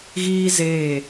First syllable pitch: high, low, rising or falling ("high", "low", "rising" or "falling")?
high